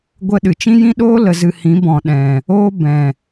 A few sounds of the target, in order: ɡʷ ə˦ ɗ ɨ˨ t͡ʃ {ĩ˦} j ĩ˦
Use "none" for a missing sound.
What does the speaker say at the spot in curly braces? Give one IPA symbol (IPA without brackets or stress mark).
ĩ˦